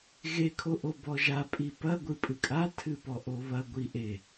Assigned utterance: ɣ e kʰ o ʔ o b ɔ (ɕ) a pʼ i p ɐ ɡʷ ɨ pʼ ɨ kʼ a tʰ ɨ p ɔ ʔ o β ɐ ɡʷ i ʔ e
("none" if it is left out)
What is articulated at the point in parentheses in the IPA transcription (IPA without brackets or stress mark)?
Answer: ʒ